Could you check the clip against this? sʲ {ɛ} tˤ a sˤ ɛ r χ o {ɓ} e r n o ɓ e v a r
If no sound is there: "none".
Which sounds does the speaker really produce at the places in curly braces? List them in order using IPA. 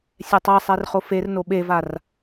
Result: ɛ, f

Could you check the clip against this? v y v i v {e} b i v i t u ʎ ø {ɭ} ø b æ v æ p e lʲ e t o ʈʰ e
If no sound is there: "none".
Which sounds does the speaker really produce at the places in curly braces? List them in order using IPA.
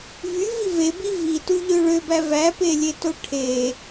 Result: e, ɭ

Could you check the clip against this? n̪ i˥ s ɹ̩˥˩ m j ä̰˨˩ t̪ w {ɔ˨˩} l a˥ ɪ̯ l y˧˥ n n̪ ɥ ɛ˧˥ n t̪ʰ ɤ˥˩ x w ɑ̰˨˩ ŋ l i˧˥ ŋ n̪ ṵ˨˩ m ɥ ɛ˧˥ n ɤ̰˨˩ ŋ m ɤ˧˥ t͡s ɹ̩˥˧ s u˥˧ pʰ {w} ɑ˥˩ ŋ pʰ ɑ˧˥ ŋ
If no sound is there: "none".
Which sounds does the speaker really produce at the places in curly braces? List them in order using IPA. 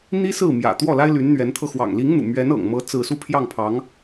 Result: ɔ˥˩, j

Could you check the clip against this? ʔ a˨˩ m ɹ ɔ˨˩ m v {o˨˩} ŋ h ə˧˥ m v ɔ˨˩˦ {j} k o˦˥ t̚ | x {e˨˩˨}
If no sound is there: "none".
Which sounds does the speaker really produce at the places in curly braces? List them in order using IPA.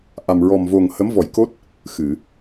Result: o˨˩, j, ɨ˨˩˨

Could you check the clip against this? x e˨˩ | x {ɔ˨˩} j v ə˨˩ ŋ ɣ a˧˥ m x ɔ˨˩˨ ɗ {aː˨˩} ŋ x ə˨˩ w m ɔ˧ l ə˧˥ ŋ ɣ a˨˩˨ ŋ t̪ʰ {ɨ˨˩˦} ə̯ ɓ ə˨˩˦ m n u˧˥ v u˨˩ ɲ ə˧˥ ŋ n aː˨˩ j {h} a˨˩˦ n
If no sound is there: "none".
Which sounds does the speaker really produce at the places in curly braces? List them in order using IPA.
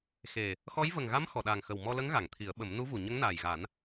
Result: ɔ˧˥, aː˨˩, i˨˩˦, ɣ

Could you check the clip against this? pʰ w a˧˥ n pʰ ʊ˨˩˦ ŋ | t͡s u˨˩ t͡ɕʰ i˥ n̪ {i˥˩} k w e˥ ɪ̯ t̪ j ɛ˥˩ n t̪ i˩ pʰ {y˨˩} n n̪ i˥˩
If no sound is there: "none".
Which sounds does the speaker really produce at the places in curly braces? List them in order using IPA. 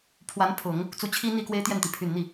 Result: i˥˩, y˨˩

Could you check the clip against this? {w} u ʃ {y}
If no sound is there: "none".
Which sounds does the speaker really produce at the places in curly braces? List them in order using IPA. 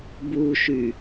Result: b, y

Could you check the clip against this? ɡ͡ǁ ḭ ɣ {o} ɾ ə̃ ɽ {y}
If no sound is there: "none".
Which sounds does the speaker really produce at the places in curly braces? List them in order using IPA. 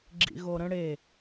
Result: o, e

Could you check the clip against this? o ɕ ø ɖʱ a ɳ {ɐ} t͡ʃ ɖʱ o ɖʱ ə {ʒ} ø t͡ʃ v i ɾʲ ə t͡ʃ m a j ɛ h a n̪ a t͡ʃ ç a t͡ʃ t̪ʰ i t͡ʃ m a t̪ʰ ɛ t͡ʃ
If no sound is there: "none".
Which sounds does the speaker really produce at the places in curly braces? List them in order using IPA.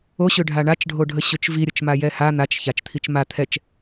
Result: a, ɕ

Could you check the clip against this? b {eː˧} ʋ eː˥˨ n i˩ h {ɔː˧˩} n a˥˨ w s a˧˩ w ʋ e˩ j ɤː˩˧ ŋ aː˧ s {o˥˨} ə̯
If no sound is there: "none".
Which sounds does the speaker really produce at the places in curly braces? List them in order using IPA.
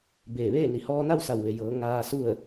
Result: eː˧˩, ɔː˧, u˥˨

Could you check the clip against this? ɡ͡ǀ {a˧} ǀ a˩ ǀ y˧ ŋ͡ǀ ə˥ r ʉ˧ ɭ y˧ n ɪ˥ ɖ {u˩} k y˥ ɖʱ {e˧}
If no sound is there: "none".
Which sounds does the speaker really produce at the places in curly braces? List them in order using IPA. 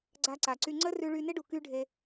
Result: a˧, u˩, e˧

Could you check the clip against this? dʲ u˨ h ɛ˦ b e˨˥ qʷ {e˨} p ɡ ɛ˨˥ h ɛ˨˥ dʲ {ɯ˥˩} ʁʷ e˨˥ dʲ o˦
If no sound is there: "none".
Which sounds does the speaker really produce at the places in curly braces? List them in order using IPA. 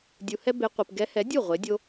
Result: i˨, u˥˩

